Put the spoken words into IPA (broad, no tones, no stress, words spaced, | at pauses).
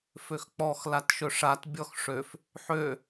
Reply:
føxk͡pɔx latʃɵʂat bʲɔxʂøf | ħø